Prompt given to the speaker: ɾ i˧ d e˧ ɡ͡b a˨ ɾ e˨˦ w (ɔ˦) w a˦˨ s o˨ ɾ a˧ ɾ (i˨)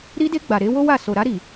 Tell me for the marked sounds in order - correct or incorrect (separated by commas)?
incorrect, correct